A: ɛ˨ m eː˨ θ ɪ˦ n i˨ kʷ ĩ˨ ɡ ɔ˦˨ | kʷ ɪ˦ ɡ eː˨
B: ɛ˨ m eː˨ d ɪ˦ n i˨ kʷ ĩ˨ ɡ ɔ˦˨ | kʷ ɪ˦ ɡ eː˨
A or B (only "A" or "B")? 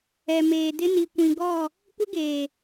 B